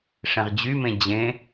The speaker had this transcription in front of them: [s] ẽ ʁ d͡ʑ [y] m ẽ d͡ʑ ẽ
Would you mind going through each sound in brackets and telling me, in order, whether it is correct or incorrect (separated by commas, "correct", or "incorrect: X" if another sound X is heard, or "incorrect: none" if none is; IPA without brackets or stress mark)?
incorrect: ʂ, correct